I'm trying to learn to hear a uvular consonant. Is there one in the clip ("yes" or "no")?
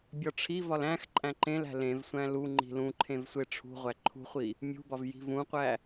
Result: yes